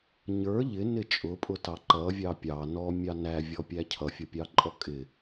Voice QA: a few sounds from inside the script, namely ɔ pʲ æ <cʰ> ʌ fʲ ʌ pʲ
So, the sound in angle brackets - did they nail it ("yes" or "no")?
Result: yes